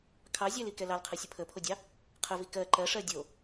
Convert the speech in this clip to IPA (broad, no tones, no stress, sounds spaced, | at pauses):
kʰ ɑ zʲ ɛ l i k ɛ l ɑ l qʰ ɜ sʲ ə pʰ ə pʰ o dʲ ɑ | qʰ ə v i k ɜ ǃ ɜ ʂ ɜ dʲ o